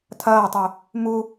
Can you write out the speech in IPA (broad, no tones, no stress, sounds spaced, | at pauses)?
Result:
tʰ ɐː tˤ u | m u